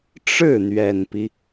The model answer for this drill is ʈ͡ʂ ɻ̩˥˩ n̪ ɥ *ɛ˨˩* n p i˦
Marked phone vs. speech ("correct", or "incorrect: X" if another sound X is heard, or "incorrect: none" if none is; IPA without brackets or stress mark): correct